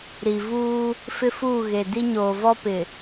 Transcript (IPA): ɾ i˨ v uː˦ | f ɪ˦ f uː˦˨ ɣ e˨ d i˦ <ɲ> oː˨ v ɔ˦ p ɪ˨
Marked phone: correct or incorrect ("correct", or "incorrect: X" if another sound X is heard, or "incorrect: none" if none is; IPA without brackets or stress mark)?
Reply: correct